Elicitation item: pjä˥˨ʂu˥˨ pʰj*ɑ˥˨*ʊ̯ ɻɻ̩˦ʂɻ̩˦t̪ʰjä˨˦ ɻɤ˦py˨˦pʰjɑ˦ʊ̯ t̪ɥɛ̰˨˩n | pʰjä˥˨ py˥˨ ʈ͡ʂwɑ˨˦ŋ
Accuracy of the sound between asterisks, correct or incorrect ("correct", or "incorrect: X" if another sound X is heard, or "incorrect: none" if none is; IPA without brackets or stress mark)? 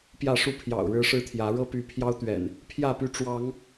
incorrect: ɑ̰˨˩